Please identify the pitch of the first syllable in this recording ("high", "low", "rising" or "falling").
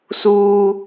high